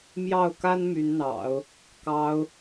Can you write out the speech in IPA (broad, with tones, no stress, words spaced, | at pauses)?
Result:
mjɑ˥˩ʊ̯ka˥n my˧˥nn̪ɑ̰˨˩˦ʊ̯ | kɑ˧˥ʊ̯